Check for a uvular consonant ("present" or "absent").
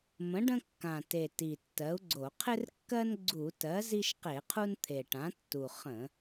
present